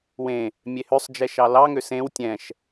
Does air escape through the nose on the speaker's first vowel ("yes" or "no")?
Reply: yes